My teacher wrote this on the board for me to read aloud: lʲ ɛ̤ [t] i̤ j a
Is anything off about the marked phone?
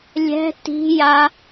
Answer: no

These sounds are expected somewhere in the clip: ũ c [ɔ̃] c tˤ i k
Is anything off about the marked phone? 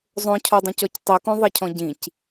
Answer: yes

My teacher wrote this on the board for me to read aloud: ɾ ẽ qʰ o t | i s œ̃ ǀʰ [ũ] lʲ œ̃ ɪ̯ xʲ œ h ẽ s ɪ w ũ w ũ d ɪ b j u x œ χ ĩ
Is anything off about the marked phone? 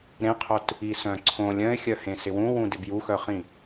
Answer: yes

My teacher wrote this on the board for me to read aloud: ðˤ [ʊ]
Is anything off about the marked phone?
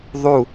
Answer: yes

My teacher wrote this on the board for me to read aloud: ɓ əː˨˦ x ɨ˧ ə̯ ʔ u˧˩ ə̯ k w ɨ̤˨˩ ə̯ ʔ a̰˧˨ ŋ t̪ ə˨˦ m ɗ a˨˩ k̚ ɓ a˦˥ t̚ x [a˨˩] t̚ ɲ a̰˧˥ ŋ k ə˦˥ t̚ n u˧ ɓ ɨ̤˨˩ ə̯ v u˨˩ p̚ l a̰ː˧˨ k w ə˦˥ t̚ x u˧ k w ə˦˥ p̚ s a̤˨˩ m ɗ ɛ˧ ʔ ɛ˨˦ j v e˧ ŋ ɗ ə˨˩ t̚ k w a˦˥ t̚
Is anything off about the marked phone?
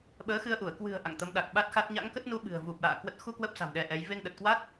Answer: yes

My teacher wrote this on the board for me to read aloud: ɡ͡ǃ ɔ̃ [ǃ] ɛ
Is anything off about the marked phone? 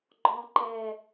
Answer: no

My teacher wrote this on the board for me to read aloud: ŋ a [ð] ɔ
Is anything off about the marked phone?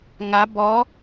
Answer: yes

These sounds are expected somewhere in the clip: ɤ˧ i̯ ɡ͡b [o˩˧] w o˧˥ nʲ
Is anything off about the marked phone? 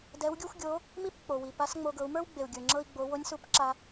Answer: no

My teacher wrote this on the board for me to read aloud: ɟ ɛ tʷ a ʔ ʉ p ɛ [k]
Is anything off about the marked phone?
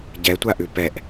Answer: yes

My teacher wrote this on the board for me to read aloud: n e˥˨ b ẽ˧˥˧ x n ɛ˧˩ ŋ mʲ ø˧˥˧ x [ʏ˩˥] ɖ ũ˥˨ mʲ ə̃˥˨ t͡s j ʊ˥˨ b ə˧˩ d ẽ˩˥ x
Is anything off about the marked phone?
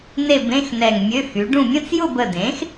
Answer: yes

